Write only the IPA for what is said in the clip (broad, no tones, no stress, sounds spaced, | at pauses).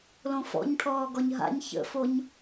l õ f ɔ̰ ɲ ʈʰ ɔː ɡ ɔ ɲ ɦ a̰ ɲ ç ə̰ f o ɲ